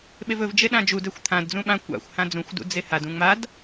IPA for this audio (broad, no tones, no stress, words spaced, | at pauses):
ɓevɵv d͡ʒeɗãd͡ʒud ɛxʷt̪ʰãd d͡zũɓã kʷa̰xʷ hãd͡zũxʷ dṵd͡zehad ũŋ͡mad